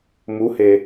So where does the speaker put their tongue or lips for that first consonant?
lips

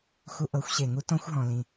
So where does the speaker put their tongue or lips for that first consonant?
velum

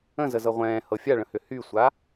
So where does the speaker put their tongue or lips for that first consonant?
tongue tip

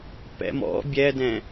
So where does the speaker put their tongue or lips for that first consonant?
lips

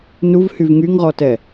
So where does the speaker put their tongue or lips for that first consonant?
tongue tip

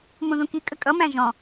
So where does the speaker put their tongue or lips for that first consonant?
lips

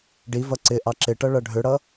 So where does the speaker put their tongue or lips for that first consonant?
retroflex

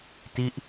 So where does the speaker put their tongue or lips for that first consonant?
tongue tip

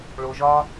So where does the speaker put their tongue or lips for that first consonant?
retroflex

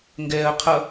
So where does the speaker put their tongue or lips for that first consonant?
velum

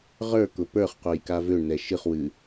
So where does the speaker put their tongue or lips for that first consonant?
uvula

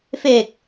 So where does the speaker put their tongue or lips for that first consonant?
lips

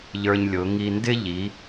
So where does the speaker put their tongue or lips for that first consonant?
palate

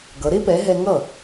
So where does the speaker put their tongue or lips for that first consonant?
velum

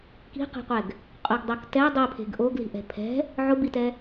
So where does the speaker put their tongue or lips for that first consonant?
velum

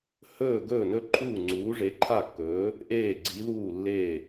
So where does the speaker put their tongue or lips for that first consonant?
throat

